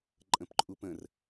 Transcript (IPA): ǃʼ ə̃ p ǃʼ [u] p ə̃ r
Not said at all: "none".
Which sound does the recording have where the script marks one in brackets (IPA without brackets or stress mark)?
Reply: u